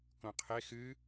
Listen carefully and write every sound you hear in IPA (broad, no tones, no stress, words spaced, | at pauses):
kõqʰe xɨ